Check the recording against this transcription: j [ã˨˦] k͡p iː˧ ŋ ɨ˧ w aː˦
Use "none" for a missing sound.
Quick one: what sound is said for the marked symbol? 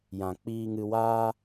ã˨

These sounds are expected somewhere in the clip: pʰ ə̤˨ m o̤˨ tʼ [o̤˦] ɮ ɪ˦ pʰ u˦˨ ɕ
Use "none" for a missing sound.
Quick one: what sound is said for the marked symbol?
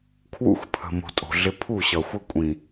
o̤˨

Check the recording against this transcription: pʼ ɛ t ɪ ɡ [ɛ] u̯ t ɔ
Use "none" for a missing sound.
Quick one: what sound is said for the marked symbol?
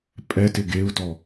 e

